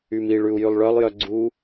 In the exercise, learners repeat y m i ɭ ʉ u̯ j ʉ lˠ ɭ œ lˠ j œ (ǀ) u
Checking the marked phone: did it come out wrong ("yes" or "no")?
yes